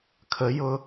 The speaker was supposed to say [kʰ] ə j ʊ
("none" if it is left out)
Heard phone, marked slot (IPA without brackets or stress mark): kʰ